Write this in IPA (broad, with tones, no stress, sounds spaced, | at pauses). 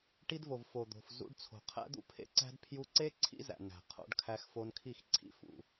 ʈ i˧ d v o˨ v f o˨ d̪ o̤˨ f z ṵ˧ ɖ t͡sʰ o̤˨ qʰ æ̰˦ d̪ ṵ˦ pʰ ḛ˦ ǀ æ̤˦ d pʰ j u˧ ǀ e˦ ǀʰ ḭ˦ z æ̰˨ n æ̤˨ qʰ o̰˧ ɖ kʰ æ˧ x f o˧ n kʰ i˦˨ x ǀʰ ḭ˦ f ṵ˨